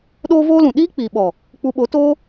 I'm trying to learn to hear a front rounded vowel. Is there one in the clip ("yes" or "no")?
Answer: no